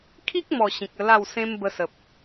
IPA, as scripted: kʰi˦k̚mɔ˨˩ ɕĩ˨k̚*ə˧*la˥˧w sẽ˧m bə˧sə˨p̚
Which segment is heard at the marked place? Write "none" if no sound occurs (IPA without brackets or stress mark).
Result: ə˧